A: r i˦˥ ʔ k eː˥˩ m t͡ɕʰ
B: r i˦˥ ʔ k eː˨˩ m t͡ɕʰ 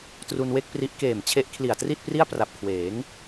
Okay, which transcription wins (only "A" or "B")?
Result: B